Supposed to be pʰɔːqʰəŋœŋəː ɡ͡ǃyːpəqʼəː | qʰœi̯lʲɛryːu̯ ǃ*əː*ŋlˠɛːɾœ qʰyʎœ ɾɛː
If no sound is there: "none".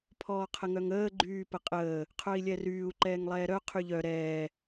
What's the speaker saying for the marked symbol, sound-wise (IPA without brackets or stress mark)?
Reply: ɛː